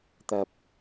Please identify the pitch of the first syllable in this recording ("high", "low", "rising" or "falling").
low